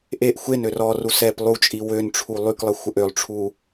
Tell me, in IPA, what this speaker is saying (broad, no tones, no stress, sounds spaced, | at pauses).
ʔ e ʔ xʷ e n ø r ɔ r u s ɛ p lˠ u t͡ʃʼ i w ø n ʈ͡ʂʰ u lˠ y k lˠ ə xʷ ə ʔ ø lˠ ʈ͡ʂʰ u